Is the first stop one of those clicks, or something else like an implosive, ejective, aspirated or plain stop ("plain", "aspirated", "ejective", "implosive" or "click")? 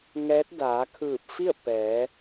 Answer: plain